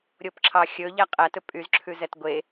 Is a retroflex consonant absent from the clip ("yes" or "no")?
yes